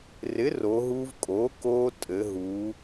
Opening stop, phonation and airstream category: ejective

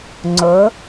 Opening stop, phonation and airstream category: click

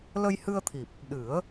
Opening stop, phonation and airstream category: aspirated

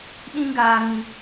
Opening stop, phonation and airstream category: implosive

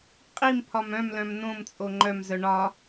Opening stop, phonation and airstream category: ejective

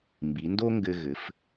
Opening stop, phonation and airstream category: plain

